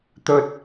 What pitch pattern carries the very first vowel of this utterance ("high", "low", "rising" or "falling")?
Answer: high